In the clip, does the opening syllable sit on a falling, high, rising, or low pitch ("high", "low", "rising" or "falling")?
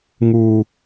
high